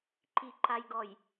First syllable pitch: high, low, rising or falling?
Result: low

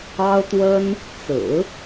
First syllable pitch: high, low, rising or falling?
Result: high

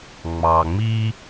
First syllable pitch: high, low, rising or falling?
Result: low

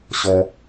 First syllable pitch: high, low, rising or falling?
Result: high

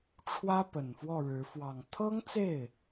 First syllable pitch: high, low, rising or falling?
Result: high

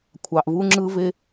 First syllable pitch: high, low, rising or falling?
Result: low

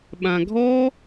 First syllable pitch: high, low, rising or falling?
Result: low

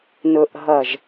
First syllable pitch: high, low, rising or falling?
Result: low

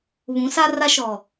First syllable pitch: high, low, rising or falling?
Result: rising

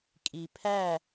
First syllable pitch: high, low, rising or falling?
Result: low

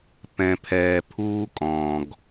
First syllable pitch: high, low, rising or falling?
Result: low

